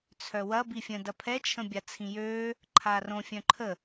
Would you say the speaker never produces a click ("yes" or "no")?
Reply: no